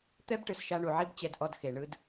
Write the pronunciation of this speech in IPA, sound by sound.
t̪ɛ˦bʈɯ˨sʃa˧ ɳu˨ʕi˦b t͡ɕɛ˧d ʔɔ˦dxe˨ ɳɯ˦d

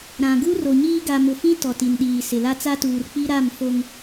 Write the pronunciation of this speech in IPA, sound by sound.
ɾã˨ ɡu˦ro˨ɲiː˦ ɡa˨mʊ˨fĩ˦ tɔ˨ti˨nɗiː˨sɪ˨ la˦t͡sa˦tuː˨r k͡pi˦ɾa˦˨m fo˨ŋ

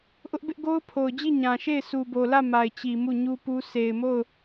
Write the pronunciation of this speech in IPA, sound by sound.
ʔʊ˦ʔbɪ˦ʔ ɡo˦ʊ̯pʰo˨ʊ̯d͡ʑi˦˨ ɲã˨ʃe˦˨ɪ̯ su˨bo˨lä˦˨ ma˨ɪ̯t͡ɕi˨ mu˦˨ɲu˦pu˦ sʰe˨ɪ̯mo˦˨ʊ̯

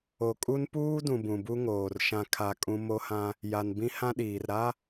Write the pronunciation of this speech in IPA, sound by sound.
o˨kʼu˦npuː˦dũ˨ bũ˨bu˦ŋoː˨r ʃã˨kʰa˨ kʼũ˦ mo˦hã˦ | ja˨nbĩ˦ hã˦ɗiː˨r ɾa˦

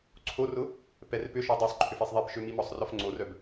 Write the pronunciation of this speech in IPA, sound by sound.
ǀʰorʊ | pɛrpʏʃɔ dˤœsˤ ǃʰʏfisˤðˤipʃø mimɔsˤrɔf ŋ͡ǀorœb

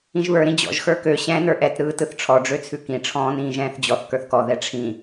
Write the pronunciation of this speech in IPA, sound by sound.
ĩʒβə˞ ɾĩd͡ʑɔ̰ʒ xə˞kø ɕɛ̃ nə˞ʔɛt ɾɯːtɯθʈ͡ʂʰɔ ɖ͡ʐøt͡sʰʉkĩ ʈ͡ʂʰɔ̃ːnĩːʒɛ̃ːθd͡ʑɔθ kə˞θkɔ ðɛʈ͡ʂʰĩ

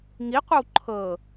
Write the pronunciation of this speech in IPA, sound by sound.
ŋiqʷɛw ǃʰɤ

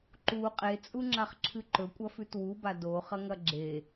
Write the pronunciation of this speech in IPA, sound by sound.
ǃu qʼet͡sʼu ŋ͡ǁaχǁʰɨǃɵkʷʼɐ fʉtwuba doχɐŋɐ ɡ͡ǁe

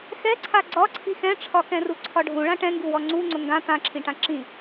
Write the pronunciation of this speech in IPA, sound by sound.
xɛǀʰa ɡ͡ǀɒǀʰi xɛ̃ʈ͡ʂʰɒkɛ̃ru ǀʰɒɖʱũ ɭãʈɛ̃ŋɡuwɔ ŋ͡ǀuŋ͡ǀʊ ŋɡã t̪ãǁʰĩʈã ǁĩ

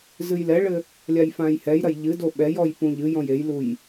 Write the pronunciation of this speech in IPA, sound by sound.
zɨjlɛɭɘ | lʲajfãːjhɛjɾɐj ʎɨdo ɓɛjɔj pũʎɨjɔ̃j ejluj

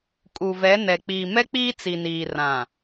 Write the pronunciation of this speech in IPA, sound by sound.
kʼu˨vɛ˨˦nɛ˨ k͡piː˨mɛ˦k͡piː˦ t͡si˨niː˨ rã˨

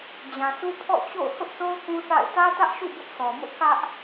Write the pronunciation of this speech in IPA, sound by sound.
d͡ʑã˨sʰu˦ pʰɔ̰˦˨t͡ɕo̰˦˨ʊ̯ hʊ˦ʔso˦ʊ̯ kũ˦θa̰˦˨ɪ̯ tä˦tä˦ʔʃṵ˦˨ bʊ˦ʔsʰɔ˨ mʊ˦ʔkä˦ʔ

